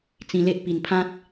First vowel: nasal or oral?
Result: nasal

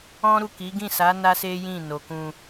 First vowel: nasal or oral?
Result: nasal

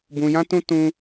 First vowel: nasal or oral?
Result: nasal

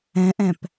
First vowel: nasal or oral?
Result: nasal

